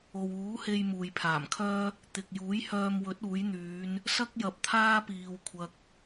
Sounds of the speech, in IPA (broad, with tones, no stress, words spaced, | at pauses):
o˨wuː˨˥he˧j muː˨jpʰaː˨˩mkʰœː˥ | t̪ɪ˨k̚ juː˨˥jhœː˧mwɵ˨˥t̚ uː˨˥jn̪yː˨˧n | sɐ˥k̚ jɐ˨˥p̚t̪ʰaː˥piː˨w kʷʰɐ˧k̚